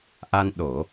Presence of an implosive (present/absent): present